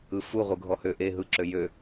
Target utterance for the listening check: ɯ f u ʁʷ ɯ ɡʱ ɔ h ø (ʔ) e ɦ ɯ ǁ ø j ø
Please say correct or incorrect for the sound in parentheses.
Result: correct